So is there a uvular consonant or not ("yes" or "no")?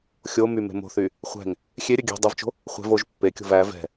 yes